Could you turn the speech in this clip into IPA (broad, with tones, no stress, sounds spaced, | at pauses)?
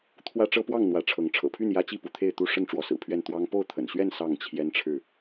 t̪ʰ w ä˦ ʈ͡ʂ ɤ˦ p w ɑ˥˨ ŋ n̪ w ä˨˦ ʈ͡ʂʰ ɤ˨˦ ŋ ʈ͡ʂʰ ɤ̰˨˩ pʰ y˥˨ n j ä˦ t͡ɕ i˥˨ p u˨˦ t̪ʰ e˥˨ ɪ̯ t̪ u˥˨ ʂ ə˥˨ n ʈ͡ʂ w ɔ˨˦ s ɹ̩˨˩ pʰ ɥ ɛ˥˨ n t̪ w ɑ˦ ŋ p o˥˨ ʊ̯ t̪ʰ ə̰˨˩ n ɕ ɥ ɛ˥˨ n s ɑ˥˨ ŋ t͡ɕʰ j ɛ˦ n ʈ͡ʂʰ ɻ̩˥˨